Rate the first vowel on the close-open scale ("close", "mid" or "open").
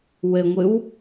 mid